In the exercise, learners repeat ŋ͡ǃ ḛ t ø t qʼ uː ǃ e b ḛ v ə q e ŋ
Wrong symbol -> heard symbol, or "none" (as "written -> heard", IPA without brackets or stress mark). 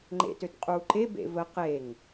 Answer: none